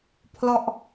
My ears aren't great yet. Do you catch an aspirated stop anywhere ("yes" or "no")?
yes